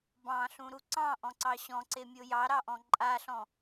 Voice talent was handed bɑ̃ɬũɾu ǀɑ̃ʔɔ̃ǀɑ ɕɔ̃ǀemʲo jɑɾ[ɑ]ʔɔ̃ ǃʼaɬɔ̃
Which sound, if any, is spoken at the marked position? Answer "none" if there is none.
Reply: ɑ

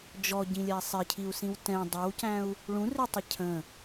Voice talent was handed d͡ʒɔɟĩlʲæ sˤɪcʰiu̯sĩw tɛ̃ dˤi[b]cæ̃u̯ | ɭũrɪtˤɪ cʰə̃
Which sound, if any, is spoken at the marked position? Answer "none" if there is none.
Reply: w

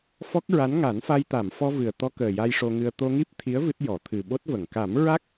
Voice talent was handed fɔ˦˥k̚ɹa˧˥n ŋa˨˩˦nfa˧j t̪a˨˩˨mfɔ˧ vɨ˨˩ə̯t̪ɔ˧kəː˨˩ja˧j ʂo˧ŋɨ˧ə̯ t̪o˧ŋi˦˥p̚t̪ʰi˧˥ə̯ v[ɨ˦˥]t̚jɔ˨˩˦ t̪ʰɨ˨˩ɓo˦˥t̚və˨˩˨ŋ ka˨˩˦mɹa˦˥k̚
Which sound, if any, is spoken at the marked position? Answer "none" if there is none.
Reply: ɨ˦˥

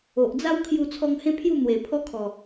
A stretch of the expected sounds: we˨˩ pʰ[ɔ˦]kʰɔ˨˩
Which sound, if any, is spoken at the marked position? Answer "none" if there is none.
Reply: ɔ˦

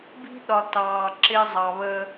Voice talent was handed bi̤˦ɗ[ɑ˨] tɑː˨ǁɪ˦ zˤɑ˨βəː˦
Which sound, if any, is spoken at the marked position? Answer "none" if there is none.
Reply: ɒ˨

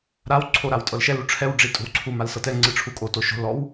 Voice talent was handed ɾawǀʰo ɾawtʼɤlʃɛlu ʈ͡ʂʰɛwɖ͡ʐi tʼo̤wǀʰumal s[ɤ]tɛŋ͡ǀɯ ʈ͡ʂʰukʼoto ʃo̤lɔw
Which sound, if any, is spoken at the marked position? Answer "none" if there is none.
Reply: ɤ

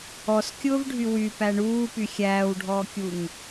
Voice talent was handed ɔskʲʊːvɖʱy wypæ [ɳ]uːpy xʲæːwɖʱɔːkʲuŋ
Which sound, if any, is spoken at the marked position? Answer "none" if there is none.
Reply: ɳ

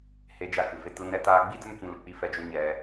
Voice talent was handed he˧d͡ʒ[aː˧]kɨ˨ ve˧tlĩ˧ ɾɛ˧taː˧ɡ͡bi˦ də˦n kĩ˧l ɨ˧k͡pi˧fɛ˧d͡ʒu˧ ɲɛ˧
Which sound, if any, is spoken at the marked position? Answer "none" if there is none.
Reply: a˧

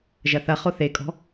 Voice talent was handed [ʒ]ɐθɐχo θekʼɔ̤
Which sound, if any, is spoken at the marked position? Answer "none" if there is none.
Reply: ʒ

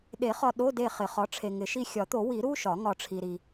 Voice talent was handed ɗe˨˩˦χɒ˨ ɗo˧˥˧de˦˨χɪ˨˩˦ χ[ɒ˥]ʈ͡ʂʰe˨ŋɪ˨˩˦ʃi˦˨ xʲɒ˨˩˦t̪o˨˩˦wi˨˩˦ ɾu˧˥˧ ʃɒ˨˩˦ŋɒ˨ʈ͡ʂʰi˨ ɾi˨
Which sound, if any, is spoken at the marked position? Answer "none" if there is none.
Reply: ɒ˩˥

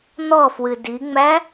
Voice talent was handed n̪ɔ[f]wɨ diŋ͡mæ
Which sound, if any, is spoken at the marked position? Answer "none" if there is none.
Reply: f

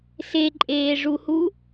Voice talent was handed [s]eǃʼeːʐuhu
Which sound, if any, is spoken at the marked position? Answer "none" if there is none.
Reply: s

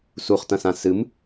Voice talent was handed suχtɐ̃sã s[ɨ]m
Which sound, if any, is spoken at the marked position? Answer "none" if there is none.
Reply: ɨ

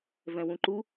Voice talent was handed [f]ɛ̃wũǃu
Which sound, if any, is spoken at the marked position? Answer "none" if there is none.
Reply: v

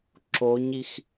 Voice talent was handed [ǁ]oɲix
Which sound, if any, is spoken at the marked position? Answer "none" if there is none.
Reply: ǁ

